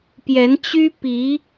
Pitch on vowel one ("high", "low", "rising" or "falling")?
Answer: rising